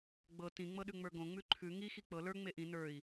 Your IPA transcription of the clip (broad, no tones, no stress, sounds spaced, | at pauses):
ɡ͡b ɤ t ĩ ŋ͡m ɤ ɗ ʉ ŋ͡m ə˞ ɡ õ ŋ͡m ʉ ǃʰ ʉ ŋ i x i k͡p ɤ l ə˞ ŋ͡m e ʔ ĩ n ə˞ i̯